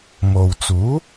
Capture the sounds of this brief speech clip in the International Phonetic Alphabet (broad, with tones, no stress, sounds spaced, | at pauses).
m o˨ w t͡s uː˨˥